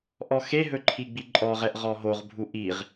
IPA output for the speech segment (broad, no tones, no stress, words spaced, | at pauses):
ʔɔxeɦɵ ǃʰiɡ͡biǃʼɔʁɛʔ ʁɔɦoʁbʱu ʔiʁ